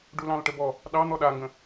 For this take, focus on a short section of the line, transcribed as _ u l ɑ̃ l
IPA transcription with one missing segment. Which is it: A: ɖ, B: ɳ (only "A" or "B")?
A